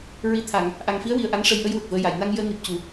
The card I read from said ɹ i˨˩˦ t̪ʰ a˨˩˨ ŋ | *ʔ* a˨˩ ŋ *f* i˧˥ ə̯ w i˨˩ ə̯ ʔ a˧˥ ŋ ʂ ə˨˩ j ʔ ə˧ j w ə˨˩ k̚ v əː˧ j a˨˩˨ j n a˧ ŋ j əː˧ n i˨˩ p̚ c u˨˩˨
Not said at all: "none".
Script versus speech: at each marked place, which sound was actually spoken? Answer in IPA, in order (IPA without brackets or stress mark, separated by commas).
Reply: ʔ, f